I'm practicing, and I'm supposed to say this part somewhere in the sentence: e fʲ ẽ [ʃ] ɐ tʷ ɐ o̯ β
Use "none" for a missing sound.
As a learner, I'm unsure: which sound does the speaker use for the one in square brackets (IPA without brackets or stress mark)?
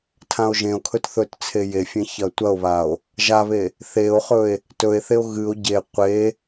ç